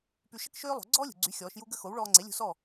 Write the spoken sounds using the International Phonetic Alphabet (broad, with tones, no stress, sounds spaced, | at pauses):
p y˧ ʃ ə˥ k ʃ øː˥ lˠ o̤˩˥ ɡ͡ǀ ɔː˥ lʲ ṳ˩ ɡ͡ǀ y˩˥ xʲ ɔː˩˥ ʃ j u˥ ɡ ə˥ x o˩˥ w ɭ ɔː˧ ŋ͡ǀ e˩˥ lʲ ṳ˧ s ɔ˥˩